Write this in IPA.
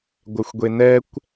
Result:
ɡʷœxʷɡʷenɛkʷ

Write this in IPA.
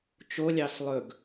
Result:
t͡ʃolʲɑs lˠɵɡ

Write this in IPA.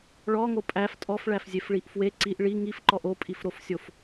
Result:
ɭɔŋo pʼæf tʼɔfɭæfzʲefɭiʔ fwe ǀiʔ ɭi ŋifǃɔʔ opʼifɾofsʲof

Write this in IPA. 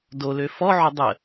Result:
dolø fɔʕø dˤə

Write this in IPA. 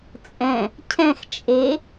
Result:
t͡sʼɛ̃ | cʰɛ̃x t͡ʃʼe

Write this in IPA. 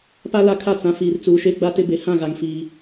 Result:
pa˦ la˦kʰa˦˨ t͡sã˨fiː˨rt͡suː˨ʃe˦ ɡ͡ba˦tɪ˦ be˨hã˦˨ɣa˨ŋ fiː˦

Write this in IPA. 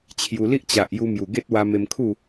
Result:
t͡ɕʰju˧ li˦ʔ t͡ɕa˨ʔ ju˧mju˨˩ɡe˦t̚wa˧ me˧mkʰu˥˧

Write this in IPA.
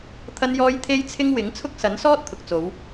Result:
t̪ʰɐ˥njɔː˥j t̪ʰe˥jt͡sʰɪ˥ŋ wɪ˨˥ŋt͡sʰʊ˥k̚sɐ˨˥n sɔː˥t̚t̪ʰʊ˨k̚t͡so˨˧w

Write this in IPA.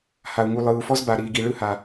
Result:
ha˨u̯ŋu˨lˠɯː˨u̯fɔ˦z ba˨ɾiː˨ɡi˨ ɭɯ˦ha˨

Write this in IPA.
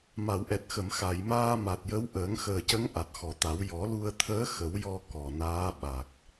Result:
ma˨˩˨wʔɛ˨˩t̚xə˨˩˨m xa˨˩˨jmaː˧ma˨˩t̚jə˧˥w ʔəː˨˩˦ŋxəː˨˩cə˧˥ŋ ʔa˨˩t̚xɔ˨˩t̪a˨˩˦w jɔ˨˩˦lu˧ə̯ t̪ʰəː˧˥ xə˨˩˦wjɔ˧ kɔ˨˩naː˧˥ɓa˨˩k̚

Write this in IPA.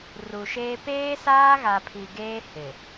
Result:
ru˨ʃeː˦ peː˦saː˦ɣa˨ pʰi˨ ɡeː˦ hɪ˨

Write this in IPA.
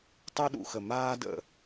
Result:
tˤu˥ɗṵ˩˧xə˧˩ maː˥də̰˧˩

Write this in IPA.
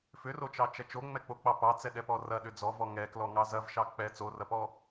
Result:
fʏrot͡ʃɑt͡ʃɐ t͡ʃoŋ͡mɛk͡pok͡pɑ pɑt͡sɛɗɛpɔ rɐɗʏ d͡zɔvɔ ŋɛklɔŋɑ zɐvʃɑ k͡pɛ t͡sorɐpɔ

